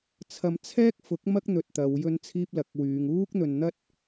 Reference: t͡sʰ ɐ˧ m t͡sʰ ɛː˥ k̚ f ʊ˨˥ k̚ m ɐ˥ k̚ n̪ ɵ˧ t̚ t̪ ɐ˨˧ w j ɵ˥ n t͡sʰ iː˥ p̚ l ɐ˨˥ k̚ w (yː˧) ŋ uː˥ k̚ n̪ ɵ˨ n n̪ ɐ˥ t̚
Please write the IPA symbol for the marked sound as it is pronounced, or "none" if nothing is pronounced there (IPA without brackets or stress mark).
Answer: yː˨˧